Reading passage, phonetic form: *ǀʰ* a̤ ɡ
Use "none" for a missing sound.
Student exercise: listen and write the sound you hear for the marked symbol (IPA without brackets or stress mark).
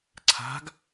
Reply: ǀʰ